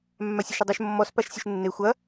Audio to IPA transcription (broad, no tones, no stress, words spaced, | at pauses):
mːasʲaʃodˤɵʃ mːɔspaʃsʲɵʃ nːe xʷɐ